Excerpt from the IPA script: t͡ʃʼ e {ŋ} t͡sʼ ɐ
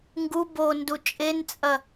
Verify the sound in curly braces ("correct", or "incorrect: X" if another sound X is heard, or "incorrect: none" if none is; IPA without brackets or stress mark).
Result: incorrect: n